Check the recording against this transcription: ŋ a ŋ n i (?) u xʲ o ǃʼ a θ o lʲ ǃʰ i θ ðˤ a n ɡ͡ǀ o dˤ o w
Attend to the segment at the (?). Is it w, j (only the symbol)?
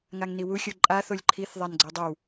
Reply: w